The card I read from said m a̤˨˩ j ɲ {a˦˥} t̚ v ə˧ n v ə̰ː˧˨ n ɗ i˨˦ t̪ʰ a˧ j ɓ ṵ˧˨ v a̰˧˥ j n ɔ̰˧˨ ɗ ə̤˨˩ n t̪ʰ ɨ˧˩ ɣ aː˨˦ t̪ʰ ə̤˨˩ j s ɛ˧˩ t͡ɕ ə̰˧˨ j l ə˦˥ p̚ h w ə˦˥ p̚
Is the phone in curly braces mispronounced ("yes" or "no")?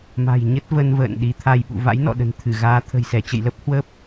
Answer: yes